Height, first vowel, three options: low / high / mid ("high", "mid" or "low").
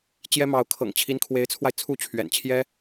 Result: mid